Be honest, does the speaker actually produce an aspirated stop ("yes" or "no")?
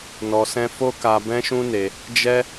no